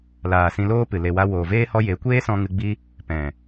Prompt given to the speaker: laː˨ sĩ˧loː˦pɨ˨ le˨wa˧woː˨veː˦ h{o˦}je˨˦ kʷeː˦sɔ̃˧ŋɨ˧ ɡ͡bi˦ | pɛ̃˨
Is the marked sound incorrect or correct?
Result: incorrect